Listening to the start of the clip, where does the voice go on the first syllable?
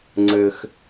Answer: high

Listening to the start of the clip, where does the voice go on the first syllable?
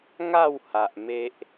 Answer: falling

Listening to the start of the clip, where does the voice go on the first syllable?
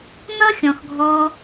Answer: high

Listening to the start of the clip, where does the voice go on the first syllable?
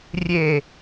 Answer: low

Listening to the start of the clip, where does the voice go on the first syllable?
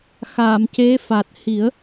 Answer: low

